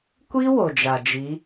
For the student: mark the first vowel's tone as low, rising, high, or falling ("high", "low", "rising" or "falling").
high